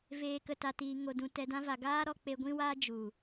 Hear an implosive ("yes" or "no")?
no